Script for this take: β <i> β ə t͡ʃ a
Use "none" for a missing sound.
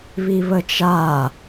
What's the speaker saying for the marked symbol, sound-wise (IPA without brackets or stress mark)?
i